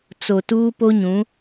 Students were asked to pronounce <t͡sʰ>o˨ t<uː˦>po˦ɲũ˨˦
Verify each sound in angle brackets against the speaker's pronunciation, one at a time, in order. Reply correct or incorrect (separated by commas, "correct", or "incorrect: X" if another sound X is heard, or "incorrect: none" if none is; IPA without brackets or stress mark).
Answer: incorrect: t͡s, correct